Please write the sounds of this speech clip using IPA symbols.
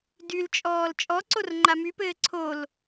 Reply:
d y l t͡ʃʼ ɔː l t͡ʃʼ ɔ ǀ o r ŋ͡ǃ a m y p ɘː ǀʰ o l

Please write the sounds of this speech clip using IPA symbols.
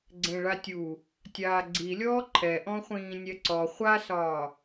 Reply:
ɡ͡ǀ ẽ ɭ a tʲ u | tʲ aː ɡ͡ǀ i lʲ ɔː ǃʰ ɛ ʔ ɔ̃ χʷ ĩː nʲ ɛ ǀ ɔ χʷ a s ɒː

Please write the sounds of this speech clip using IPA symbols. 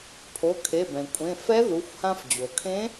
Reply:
pʰ o˩˧˩ kʰ e˩˧˩ b ɛ̃˩ kʷʼ ẽ˩˧˩ f ɛ˧˥ ð u˩˧˩ xʷ h ã˧ f d͡ʑ o˩ kʰ ẽ˧˥

